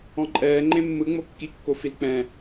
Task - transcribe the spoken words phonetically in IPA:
ɔ̃ ǃʼ ɛː ŋ͡ǃ ẽ mː ɯ ŋ͡m o kː i kː o f i l k͡p ɛ̃

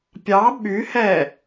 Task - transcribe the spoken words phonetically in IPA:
pʲ ɑ ɓ y h ɛ

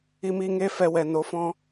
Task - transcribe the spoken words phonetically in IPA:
i˧ m i˧ ŋ e˦ f ɛ˧ w ɛ˨ n o˨˦ f ɔ̃˧

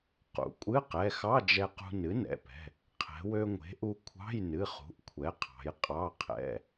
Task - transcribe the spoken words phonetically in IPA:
q ṵ˩˧ kʷʼ ɨ˧˥˧ q ɛ˩˧˩ x ɑ˧˥˧ d͡ʒ ɛ˧ q ṳ˧ n ɨ˩˥ n ɛ̰˩˧˩ p ɛ̤˩˧˩ | qʰ ɛ̤˩˧ w ø˧ ŋʷ e̤˩˥ ʔ u˧ kʷʰ ɑ̤˧˥˧ j n ɨ˩˧˩ χ ṳ˩˥ ʔ kʷʰ ɛ˩˥ qʰ ɑ̤˩˧ j qʼ ɑ˧˥˧ qʰ ɛ̰˧˥˧

